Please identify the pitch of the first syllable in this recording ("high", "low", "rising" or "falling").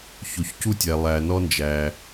low